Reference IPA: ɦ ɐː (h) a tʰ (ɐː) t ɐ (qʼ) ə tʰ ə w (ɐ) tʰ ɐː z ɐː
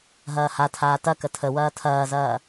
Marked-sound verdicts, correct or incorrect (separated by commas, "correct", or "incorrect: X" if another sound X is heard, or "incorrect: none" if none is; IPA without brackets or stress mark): correct, incorrect: aː, incorrect: k, incorrect: ɐː